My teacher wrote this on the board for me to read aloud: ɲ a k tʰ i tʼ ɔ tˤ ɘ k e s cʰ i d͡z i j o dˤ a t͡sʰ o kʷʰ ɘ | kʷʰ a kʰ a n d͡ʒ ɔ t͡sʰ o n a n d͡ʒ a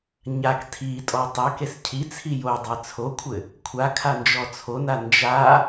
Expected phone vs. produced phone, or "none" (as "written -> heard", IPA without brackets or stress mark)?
d͡z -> t͡sʰ